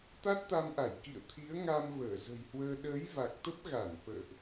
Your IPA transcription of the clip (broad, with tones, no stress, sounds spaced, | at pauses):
t̪ a˦˥ t̚ t̪ a˧ m ʔ a˧˩ j k ḭ˧˨ ə̯ t̪ʰ i˨˦ ə̯ ŋ a˧ m v əː˧˩ z ə̤˨˩ j h w əː˧ ɗ əː˨˦ j v a˨˩ k̚ t̪ ə˦˥ p̚ ɣ a˧˩ n f ə̰ː˧˨ ʔ